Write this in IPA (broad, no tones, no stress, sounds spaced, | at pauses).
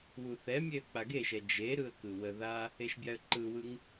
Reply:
w u θ ɛ mʲ e ə̯ k͡p a ɡ e ʃ ɛ d͡ʒ e ɾ ɯ ə̯ k ɯ w ə ð a | e ʃ bʲ a ə̯ ǃ ɯ w ɯ ŋ